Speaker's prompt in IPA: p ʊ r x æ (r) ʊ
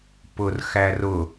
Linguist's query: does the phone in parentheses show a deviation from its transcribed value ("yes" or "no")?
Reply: no